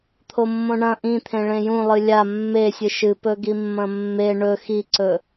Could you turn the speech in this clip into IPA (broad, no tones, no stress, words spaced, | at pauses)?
t̪ʰomːõɳɐ̃ ʔĩt̪ʰẽ ɭẽjũlˠɨ lʲa mːesʲɨ ʃɨpɵɡimːɐ̃ mːe ɳɵ xiǀɵ